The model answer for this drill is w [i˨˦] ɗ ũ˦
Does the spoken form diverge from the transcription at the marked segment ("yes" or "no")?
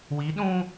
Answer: no